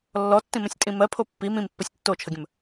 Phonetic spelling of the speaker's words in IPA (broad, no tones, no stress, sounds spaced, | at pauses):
lː ɔ tː ĩ m ə̃ sʲ tʼ ĩ m ɜ pʰ o pː i m ĩ m pː o sʲ tː o t͡ʃʰ ə ɡʲ ə̃ m